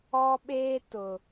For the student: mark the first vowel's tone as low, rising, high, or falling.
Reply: high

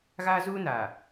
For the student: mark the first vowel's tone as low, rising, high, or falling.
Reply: high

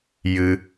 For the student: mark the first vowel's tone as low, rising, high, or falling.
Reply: high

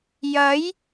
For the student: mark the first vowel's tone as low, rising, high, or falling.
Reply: rising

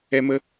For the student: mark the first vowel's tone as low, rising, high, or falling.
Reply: high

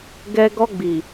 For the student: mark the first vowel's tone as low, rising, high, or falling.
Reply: high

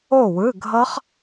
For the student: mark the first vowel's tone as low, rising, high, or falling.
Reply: falling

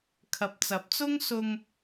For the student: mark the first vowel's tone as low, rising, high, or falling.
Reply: low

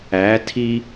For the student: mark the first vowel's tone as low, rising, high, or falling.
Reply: rising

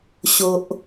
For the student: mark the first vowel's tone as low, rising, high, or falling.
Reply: low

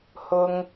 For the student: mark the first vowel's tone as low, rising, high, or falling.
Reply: low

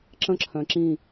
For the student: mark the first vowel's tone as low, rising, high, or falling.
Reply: falling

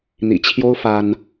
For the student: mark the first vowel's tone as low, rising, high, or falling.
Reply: low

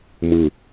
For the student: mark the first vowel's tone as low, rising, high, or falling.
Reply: low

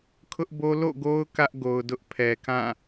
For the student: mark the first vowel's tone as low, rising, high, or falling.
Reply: high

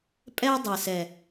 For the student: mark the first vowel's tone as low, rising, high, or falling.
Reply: high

